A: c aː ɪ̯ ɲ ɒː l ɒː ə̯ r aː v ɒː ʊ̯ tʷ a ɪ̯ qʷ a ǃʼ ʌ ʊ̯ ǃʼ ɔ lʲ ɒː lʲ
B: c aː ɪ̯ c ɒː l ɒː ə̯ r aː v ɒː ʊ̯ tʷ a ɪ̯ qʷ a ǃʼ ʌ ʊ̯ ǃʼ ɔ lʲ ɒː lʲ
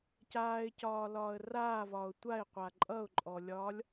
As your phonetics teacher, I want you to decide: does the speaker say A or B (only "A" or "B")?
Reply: B